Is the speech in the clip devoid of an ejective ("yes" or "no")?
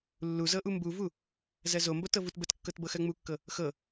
yes